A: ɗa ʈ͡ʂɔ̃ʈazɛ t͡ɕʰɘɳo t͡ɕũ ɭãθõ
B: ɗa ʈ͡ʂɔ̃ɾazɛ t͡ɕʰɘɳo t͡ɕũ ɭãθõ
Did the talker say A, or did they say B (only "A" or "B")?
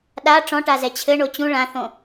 A